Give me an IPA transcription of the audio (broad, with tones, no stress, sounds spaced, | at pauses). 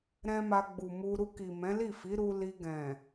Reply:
ɾ ɛ̃˦ m a˧ ɡ͡b u˨ m u˧ ɾ u˧ k i˨ m ɛ̃˨˦ l i˦˨ f i˨˦ ɾ u˦ l i˧ ɡ ɛ̃˨